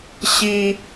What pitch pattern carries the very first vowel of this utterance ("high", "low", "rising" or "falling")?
high